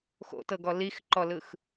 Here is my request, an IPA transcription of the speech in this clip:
x o̰ t ɤ ɡ ɔ l i x ǃ ɔ l ɯ x

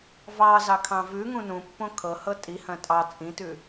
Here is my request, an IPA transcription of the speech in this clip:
v ɑ z ɑ kʰ ɑ̃ v ʉ ŋ ũ n ũ pː õ kʰ ɤ h ɤ tʼ i h ɐ̃ tʼ ɑ t͡sʼ ĩ t ʉ

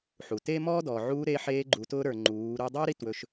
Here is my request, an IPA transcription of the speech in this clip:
ħ u˩ t eː˥ m ɔː˥ d ɔː˩ ʕ uː˧˥ ɾ e˧˥ ħ eː˧˥ ɡ͡ǃ u˩˧ t ʊː˧˥ ɾ ə˞˩ ŋ͡ǃ uː˩˧ ɾ u˧ dˤ ʊː˥ ɾ i˧ t w ɵ˩˧ ʃ

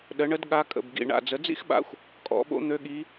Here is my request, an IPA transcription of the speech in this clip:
ɗ ə˩˥ ɳ ə˧˥ d ɠ a˧˥ kʼ ə̰˧˩ b ɡ ḭ˧˩ ɳ a̰˧˩ d͡z ə˩˥ d͡z ḭ˥ x ɓ a̰˧˥ xʷ | kʼ ɔ̰˩˥ ɓ o̰˥ n̪ ø˧˥ ɠ i˧˥

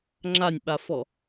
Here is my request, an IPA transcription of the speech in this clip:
ŋ͡ǁ a nʲ ɓ a f ɔ

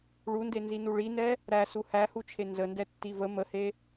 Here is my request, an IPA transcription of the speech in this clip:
ɭ u n d e n z i n u ɭ i n ɛ | ɾ æ s u h æ h u t͡ʃʰ e n z ə n d ɛ tː i v ə m ə h e

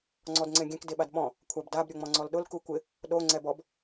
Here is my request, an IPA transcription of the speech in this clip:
ŋ͡ǀ ɔ d ŋ͡ǀ ẽ ɡʲ ɛ̃ k d e ɓ a d ɓ ɔ̃ | kʷʰ a b d a b ɾʲ o ŋ͡m ɔ̃ ŋ͡ǀ ɔ l ɗ ʊ l k u kʷ ɪ | ɗ o ŋ͡ǀ ɛ b ɔ b

